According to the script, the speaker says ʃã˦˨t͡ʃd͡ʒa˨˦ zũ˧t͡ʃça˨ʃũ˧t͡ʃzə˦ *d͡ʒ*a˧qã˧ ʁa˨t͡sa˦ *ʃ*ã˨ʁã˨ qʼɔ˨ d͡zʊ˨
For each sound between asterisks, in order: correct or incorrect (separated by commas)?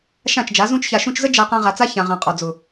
correct, incorrect